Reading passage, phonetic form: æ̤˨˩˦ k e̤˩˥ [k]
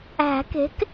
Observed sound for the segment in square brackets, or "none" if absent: k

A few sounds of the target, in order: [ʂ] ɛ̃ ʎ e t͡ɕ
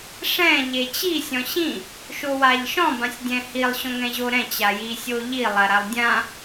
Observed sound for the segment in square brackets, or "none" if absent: ʂ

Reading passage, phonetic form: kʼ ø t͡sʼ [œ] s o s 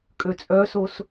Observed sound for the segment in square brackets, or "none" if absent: œ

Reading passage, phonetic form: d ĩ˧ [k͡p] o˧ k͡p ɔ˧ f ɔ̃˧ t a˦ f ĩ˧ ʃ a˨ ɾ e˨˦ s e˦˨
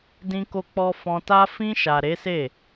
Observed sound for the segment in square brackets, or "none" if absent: k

